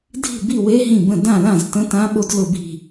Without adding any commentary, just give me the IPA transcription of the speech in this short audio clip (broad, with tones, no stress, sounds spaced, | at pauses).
dʱ i̤˥˩ b i˥˩ w e˧˥ ɦ ĩ˥˩ b ə̃˥˩ d ã˥˩ l ã˥˩ z t ə̃˧˥ t ã˧˥ ɓ o˧˥ d l ʊ˥˩ b i̤˥˩